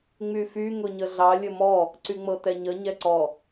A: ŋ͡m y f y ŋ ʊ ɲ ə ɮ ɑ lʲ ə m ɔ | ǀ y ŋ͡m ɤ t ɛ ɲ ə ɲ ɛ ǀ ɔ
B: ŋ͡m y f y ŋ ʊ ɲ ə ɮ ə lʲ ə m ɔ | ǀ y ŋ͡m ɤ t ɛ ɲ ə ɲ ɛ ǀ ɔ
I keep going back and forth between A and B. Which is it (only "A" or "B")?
A